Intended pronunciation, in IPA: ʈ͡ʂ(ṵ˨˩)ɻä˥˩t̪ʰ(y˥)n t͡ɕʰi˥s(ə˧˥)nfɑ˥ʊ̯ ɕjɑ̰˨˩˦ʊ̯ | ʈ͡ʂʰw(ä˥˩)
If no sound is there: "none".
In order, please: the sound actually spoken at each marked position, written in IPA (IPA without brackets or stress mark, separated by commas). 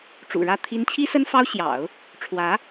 ṵ˨˩, i˥, ə˥, ä˧˥